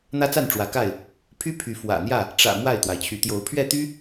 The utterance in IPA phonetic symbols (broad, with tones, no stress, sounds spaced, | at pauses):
n̪ ä˦ t͡s a˥˨ n ʈ͡ʂ w ä˨˦ k a˥˨ ɪ̯ | pʰ y˦ pʰ y˨˦ f w ä̰˨˩ n̪ j ä˥˨ | ʈ͡ʂ ä̰˨˩ m w a˥˨ ɪ̯ t̪ w a˩ ɪ̯ t͡ɕʰ y˨˦ t̪ j o˨˦ ʊ̯ pʰ ɥ ɛ˥˨ t̪ y˦